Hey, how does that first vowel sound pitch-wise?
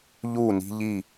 falling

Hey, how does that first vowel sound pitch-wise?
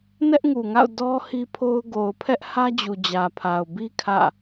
high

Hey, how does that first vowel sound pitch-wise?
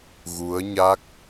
rising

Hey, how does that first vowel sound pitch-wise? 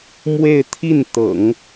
falling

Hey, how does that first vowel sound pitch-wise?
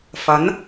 rising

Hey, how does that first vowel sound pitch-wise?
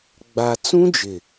low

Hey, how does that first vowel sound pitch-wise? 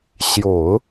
low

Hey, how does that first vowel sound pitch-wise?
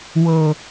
low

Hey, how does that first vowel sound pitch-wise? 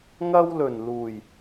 high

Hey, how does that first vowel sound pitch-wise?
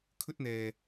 high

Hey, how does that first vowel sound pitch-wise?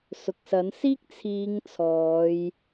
low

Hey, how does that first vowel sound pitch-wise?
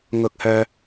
rising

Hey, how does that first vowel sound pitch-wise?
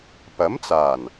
rising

